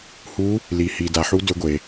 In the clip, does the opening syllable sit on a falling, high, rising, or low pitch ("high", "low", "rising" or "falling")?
rising